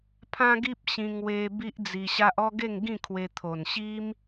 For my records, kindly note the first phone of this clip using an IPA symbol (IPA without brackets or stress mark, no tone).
pʰ